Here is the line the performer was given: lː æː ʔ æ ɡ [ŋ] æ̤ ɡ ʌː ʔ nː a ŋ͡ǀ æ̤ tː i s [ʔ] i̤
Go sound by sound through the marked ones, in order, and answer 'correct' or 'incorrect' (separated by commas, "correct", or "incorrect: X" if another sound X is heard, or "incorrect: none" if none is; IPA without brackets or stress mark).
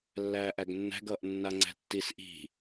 incorrect: nː, correct